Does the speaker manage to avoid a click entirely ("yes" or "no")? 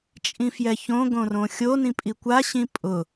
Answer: yes